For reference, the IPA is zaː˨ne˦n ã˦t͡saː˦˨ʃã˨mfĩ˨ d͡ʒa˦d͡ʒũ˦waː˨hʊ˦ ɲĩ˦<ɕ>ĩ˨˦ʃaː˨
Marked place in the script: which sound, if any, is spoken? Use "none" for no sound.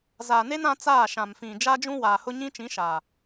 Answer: t͡ʃ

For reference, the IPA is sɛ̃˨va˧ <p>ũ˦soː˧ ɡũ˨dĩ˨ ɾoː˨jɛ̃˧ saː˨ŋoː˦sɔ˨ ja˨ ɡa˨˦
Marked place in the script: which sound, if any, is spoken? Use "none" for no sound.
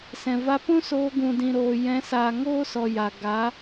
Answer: p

